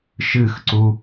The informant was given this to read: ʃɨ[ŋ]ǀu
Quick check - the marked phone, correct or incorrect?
incorrect